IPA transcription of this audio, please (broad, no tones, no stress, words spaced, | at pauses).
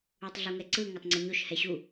utˤɮuŋɛǀɯ ŋotˤŋ͡ǀʌɲoʃ hɛɕu